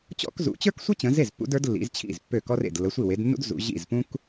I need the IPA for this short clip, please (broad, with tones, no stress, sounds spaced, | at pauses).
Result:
t͡ɕ ɔ̰˥ k z ṵ˨˦ t͡ɕ ə˞˥ k sʷ ə˥ t͡ɕ ə̃˨˦ z e˥˩ z pː ṵ˨˦ d ə˞˨˦ d lː ḭ˨˦ z t͡ɕʰ ḭ˥˩ z pː ø˥˩ k ɔ˥ r ḛ˥˩ d lː ə˨˦ sʷ i˥˩ w e˨˦ d nː ṵ˥ d z ṵ˨˦ ʑ ḭ˥˩ z p ũ˥ k